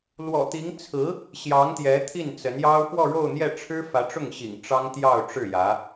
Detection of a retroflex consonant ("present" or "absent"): present